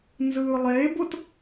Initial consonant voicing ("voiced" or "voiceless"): voiced